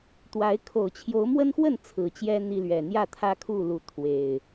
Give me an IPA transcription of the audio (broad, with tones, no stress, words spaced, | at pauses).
t̪wa˨˦ɪ̯ kʰo˨˩ʊ̯t͡ɕʰjo˨˦ʊ̯ mwə˦nxwə˥˨n t͡sʰɹ̩˨˩t͡ɕjɛ˦ n̪i˦lɥɛ˨˩ n̪jä˥˨t̪ʰä˦kʰu˥˨ lu˨˦ t̪ʰwe˨˩ɪ̯